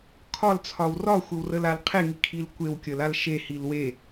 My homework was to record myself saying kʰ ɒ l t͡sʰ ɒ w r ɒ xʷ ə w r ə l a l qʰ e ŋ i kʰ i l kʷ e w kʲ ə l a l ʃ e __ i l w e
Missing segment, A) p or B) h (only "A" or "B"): B